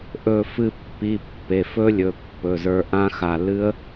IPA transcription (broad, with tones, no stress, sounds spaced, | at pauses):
ʔ ɵ˧˩ f ɨ˧˩ pː i˩˧˩ pː e˩˧˩ f ɵ˦˥ lʲ ɵ˩˧˩ pː ɵ˩˧˩ z ə˞˧ ʔ ã˦˥ x a˧˩ l ɨ˦˥ ə̯